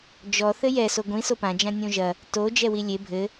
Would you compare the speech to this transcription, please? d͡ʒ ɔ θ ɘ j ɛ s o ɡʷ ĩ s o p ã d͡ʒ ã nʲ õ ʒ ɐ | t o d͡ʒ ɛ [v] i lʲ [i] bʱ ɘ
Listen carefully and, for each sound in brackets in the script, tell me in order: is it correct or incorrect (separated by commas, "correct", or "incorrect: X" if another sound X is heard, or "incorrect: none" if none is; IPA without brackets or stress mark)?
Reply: incorrect: w, incorrect: e